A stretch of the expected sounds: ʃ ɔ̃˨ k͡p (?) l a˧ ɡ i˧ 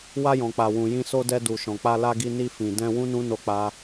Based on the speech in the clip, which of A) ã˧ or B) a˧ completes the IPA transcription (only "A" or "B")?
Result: B